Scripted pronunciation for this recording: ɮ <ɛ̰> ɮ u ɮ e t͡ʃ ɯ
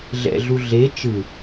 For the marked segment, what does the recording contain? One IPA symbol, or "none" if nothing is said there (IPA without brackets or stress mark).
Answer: ɛ̰